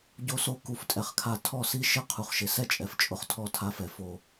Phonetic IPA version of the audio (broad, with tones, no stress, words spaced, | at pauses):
ɟo˧so˧ ku˦˨ftʼɛ˧χkʰa˧ tʰɔ˦˨si˦ʃɪ˦˨ qʰu˨χʃɪ˨˦sɛ˦t͡ʃʼɛ˨f t͡ʃʼʊ˦χtʰɔ˦˨tʰa˧fɛ˨ fo˨